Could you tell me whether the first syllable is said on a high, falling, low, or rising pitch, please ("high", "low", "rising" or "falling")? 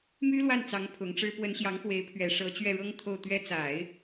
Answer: high